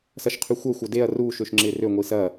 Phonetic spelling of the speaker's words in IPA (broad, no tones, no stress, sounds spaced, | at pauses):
s ɐ ʃ qʰ y xʷ ɐ xʷ ɐ d e ɐ̯ r uː ʃ ø ʃ ŋ͡ǁ ɪː r ø ŋʷ i s ɐ